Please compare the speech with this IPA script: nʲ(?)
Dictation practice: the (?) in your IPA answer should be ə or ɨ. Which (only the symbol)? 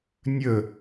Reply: ə